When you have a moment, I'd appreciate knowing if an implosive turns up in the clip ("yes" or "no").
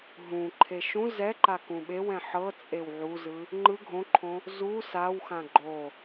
yes